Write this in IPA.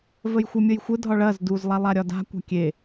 v ə j xʷ ɐ mʲ ə j xʷ ə dʱ ɒ ɭ ɐ z d u z lˠ a lˠ a ɾʲ ɒ d a̤ kʷ a̤ kʲ e

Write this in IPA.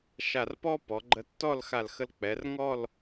ʃ a˧˩ r p ɔ˥ p ɔ˩˧ ɡ͡ǃ ə˧ tː ɔ˥˧ l x a˧˩ l x ə˧ l k͡p ɛ˩˧ r ŋ ɔ˥˧ l

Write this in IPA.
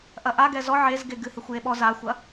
ʔ ɐ ʔ a ɡ ɛ z ɔ ʕ e z ɡ e ɡ ɨ h e xʷ j e ɓ ɔ z a xʷ ɐ

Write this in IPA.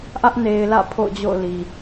ʔ ä˦ ʔ n e˨ ɪ̯ l ä̰˦˨ pʰ o̰˦˨ ʊ̯ d͡ʑ o̰˦˨ ʊ̯ l i˨

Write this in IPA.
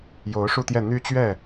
j o˧˥ ʊ̯ ʂ u˥˧ t̪ j ɛ˥˩ n̪ y˥ t͡ɕ ɥ ɛ˥˩

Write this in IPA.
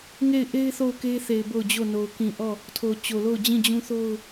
ŋ e˦˨ ɪ̯ ʔ e˦ ɪ̯ θ o˦˨ ʊ̯ k e˦ θ e˨ ɪ̯ b o˦˨ ʊ̯ d͡ʑ o˦˨ n o˨ ʊ̯ k ĩ˨ ʔ ɔ˦˨ | tʰ o˨ t͡ɕ o˨ l o˦˨ ʊ̯ d͡ʑ ĩ˦˨ d͡ʑ ũ˦ θ o˦ ʊ̯

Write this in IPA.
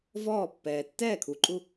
v ɔː˦˨ pː ɛː˨ tː ɛː˦˨ kʰ u˨ ǃʼ u˦

